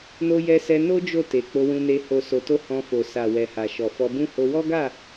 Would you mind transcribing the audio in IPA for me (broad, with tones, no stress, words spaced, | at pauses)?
no˧jɛ˧sɛ˧ no˦ d͡ʒo˦˨te˨ k͡po˧wũ˧ne˧ ho˨so˨to˧ hɔ̃˧ fo˨sa˨wɛ˨ha˨ ʃɔ˨fɔ˧bũ˦ ho˧wɔ˦ɡa˦˨